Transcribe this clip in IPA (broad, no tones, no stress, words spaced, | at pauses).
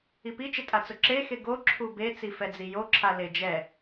ipit͡ʃɪ tʼat͡sʊǁexe ɡoǁʰu bet͡sifɛd͡zi joǁʰa led͡ʒɛ